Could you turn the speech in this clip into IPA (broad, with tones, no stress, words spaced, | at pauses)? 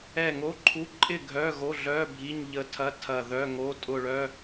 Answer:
ɛ˦˨ŋo˧˥˧ǃʰu˧˥˧ ǃʼɪ˦˨ ɡʱœ˧˥˧ɣo˧˥˧ɮœ˧˥˧ bʱi˧˥˧ɲʎə˦˨tʰɐ˧˥˧ tʰɐ˦˨ðœ˧˥˧ŋo˧˥˧ tʼʊ˦˨ɭœ˧˥˧